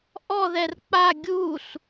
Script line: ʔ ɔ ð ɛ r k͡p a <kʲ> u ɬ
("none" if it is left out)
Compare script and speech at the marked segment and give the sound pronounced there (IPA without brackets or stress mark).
ɡʲ